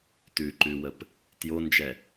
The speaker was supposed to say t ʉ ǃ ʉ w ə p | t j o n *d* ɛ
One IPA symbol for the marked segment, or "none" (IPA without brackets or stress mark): d͡ʒ